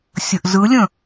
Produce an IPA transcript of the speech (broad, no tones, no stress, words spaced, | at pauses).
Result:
sʲəʔzɯlʲə̃